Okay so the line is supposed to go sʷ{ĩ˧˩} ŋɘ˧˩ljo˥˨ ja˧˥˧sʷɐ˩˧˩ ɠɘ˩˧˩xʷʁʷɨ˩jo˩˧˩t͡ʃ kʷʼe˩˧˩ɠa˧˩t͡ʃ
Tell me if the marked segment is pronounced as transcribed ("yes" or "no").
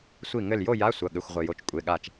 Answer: no